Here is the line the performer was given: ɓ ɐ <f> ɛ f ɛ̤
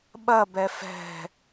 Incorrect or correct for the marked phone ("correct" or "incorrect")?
incorrect